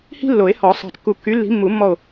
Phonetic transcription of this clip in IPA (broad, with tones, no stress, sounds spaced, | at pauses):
h i̤˥ lː o˨˩˦ e̯ h ɔ˨˩˦ sˤ ɑ̤˧˩ t kː u˧˩ kː y˨˦ lː i̤˨˦ mː u˨˩˦ mː ɔ˧˩ o̯